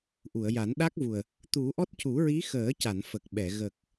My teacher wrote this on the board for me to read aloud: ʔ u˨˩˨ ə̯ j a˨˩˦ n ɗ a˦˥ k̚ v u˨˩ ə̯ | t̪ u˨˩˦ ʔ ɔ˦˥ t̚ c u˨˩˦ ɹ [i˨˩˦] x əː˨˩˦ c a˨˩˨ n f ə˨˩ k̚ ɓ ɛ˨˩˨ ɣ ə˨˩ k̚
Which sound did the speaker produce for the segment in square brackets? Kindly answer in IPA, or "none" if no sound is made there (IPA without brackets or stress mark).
i˧˥